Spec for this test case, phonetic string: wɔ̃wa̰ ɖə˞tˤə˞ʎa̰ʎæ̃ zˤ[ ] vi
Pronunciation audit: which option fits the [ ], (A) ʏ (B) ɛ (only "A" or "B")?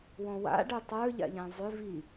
A